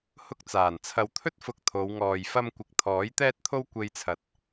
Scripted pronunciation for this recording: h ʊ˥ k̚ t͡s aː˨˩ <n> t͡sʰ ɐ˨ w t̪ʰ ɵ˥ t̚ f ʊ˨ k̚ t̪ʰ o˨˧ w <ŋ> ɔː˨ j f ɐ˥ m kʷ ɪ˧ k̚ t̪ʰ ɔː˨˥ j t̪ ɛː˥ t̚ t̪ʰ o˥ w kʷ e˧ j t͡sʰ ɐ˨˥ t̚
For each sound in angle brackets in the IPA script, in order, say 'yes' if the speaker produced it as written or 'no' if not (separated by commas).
yes, yes